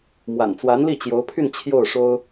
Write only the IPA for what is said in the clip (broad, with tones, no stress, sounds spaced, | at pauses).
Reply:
m w a̰˨˩ n t͡s w a˧˥ n l i˥˩ t͡ɕ j o˧˥ ʊ̯ pʰ y˥˧ n t͡ɕʰ j o˥˩ ʊ̯ ʂ o˥ ʊ̯